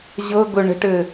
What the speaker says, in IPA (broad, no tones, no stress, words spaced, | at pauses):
ʑɤɡɵ ɳə̤ʈɘ